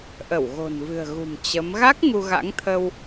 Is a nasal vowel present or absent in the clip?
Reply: absent